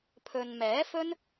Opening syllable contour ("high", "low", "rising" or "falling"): low